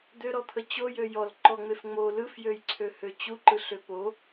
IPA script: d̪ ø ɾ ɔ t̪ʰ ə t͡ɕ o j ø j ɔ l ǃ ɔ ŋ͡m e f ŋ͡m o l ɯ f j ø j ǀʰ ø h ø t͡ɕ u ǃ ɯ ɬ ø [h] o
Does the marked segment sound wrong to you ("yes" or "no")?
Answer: yes